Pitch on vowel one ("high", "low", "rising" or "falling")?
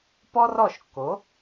high